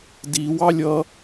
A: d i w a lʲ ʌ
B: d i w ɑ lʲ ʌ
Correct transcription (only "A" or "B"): B